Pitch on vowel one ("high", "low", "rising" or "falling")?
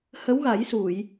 rising